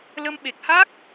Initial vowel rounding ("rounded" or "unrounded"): unrounded